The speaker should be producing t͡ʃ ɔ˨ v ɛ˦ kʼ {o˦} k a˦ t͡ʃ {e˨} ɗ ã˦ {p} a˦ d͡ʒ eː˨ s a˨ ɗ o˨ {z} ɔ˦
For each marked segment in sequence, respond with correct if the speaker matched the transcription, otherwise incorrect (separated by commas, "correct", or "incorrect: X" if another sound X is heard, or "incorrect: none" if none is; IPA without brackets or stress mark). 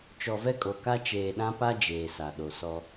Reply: incorrect: o˨, incorrect: eː˨, correct, incorrect: s